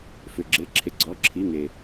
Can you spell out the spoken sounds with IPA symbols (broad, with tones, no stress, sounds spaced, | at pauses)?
f ʏ˧ ɡ͡ǁ e˧˥˧ ǁʰ e˧ ɡ͡ǀ ɔ˧˥˧ ǁʰ i˧˥˧ ŋ e˧